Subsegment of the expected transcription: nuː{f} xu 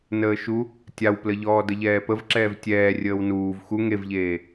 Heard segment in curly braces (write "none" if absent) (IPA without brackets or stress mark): v